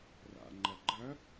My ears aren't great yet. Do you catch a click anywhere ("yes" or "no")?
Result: yes